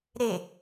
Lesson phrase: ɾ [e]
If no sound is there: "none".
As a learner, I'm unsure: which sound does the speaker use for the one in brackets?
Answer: e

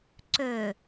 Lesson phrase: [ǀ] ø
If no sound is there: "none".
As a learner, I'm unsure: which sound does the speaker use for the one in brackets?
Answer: ǀ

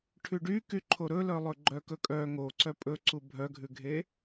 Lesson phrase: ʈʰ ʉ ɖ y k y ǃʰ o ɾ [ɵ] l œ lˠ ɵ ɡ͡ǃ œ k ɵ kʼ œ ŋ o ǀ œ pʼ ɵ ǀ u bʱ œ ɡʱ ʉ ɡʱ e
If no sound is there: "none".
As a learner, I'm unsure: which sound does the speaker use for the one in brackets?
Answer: ɵ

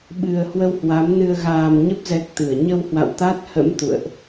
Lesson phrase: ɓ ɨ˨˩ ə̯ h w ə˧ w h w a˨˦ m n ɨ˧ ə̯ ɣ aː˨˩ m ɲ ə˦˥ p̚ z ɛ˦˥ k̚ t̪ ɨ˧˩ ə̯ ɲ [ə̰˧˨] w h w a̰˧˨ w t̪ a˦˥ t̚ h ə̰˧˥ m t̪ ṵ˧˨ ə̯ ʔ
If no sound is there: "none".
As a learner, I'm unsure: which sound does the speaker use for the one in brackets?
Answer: ə˧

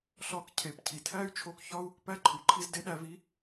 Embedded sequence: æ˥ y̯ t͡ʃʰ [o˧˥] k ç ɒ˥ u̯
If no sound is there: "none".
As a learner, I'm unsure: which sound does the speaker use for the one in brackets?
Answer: o˧˥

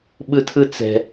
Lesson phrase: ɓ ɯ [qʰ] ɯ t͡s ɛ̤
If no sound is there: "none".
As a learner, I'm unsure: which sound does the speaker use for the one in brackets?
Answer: tʰ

